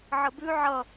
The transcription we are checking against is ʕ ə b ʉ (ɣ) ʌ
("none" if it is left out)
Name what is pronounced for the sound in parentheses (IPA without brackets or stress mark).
ʕ